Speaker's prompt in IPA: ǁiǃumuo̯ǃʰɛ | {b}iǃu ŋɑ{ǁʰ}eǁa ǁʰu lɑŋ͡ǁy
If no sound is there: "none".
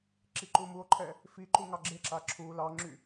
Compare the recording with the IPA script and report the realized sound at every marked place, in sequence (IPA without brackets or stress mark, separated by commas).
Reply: f, ɡ͡ǁ